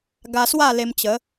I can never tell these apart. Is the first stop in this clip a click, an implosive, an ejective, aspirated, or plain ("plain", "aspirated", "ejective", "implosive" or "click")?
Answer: plain